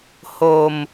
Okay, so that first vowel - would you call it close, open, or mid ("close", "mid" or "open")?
mid